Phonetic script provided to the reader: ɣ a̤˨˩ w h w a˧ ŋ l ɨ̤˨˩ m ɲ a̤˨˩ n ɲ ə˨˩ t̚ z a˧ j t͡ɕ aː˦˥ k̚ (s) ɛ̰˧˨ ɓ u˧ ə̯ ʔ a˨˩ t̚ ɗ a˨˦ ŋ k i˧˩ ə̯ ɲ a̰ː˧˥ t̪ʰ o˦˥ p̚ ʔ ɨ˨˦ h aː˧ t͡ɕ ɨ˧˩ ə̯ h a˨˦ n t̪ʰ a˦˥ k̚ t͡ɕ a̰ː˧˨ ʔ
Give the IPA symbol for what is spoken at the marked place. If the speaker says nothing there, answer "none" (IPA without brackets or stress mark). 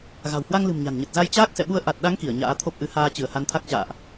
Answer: s